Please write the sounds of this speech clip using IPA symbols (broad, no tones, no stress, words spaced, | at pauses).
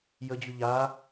jəd͡ʑy ʎa